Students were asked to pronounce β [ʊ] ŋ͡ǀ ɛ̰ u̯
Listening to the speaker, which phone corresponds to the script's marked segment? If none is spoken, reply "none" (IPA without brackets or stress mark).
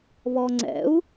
ɔ